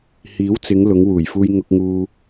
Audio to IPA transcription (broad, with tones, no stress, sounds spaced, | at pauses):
h iː˨˥ w t͡s ɪ˨˧ ŋ l ʊ˨˧ ŋ w uː˨˩ j f uː˧ j ŋ ʊ˧ k̚ ŋ uː˧